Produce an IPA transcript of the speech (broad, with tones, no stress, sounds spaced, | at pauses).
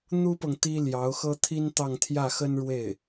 n̪ u˥ p ɤ˨ ŋ t̪ i˥ l j ɑ˧˥ ʊ̯ x ɤ˥ t̪ʰ i˥ n t̪ ɑ˥˧ ŋ t̪ʰ j ä˥˩ x ə˥ n ɻ w e˥˩ ɪ̯